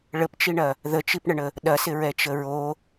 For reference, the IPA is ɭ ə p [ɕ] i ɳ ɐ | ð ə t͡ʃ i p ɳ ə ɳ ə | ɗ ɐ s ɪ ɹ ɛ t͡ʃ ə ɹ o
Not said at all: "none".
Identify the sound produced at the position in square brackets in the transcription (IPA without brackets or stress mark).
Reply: t͡ʃ